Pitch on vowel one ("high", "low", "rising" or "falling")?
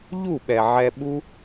falling